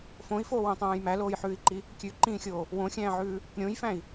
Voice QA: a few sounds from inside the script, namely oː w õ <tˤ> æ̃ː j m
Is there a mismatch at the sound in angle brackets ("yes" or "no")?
no